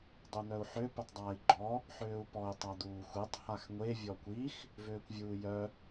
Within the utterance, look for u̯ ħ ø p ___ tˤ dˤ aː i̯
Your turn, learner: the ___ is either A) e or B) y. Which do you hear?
B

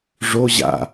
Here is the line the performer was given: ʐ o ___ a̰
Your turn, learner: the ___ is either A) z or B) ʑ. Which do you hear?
B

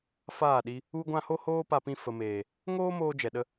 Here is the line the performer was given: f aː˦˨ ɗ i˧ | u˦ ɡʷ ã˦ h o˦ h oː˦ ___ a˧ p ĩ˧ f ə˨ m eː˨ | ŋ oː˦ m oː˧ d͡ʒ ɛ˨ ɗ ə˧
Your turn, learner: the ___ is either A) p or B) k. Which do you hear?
A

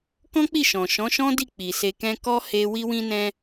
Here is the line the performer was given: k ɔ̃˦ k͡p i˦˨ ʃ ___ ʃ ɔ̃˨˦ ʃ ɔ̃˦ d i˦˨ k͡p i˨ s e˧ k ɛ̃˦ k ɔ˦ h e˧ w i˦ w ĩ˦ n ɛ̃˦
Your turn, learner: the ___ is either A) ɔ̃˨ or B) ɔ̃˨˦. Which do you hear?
A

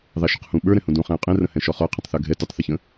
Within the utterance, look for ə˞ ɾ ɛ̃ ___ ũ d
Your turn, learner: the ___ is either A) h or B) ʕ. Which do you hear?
A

